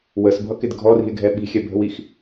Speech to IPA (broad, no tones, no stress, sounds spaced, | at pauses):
w ə s bʱ ʌ k ɪ d ɡʱ ɔ r i̤ e̯ ɡʱ ɛ ɓ i̤ xʲ ɛ bʱ ə̤ w i x